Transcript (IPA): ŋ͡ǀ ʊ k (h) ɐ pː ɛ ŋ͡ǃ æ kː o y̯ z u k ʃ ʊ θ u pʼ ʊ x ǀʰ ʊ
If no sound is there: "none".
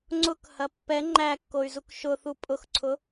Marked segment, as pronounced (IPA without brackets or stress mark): h